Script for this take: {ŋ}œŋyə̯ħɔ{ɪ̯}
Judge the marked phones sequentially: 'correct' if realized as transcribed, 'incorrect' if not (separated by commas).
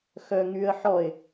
incorrect, correct